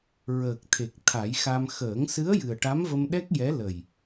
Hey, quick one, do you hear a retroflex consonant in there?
yes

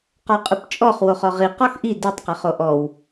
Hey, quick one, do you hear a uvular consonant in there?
yes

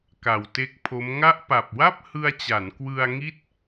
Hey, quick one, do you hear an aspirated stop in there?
yes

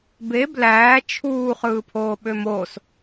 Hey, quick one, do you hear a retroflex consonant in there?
no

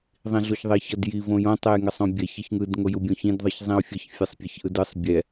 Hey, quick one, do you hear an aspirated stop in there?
no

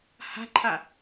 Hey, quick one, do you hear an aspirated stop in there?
yes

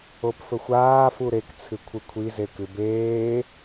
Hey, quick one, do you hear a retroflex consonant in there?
no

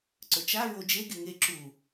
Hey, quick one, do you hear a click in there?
yes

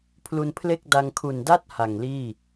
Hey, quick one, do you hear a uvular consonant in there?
no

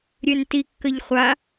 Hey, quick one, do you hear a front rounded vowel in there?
yes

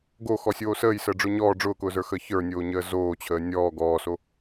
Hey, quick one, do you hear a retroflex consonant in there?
yes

